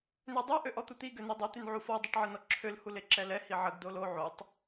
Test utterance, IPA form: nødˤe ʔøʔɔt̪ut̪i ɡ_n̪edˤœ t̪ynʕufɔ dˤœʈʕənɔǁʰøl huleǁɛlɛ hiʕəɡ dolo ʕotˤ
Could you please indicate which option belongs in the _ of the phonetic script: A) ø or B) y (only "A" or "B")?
A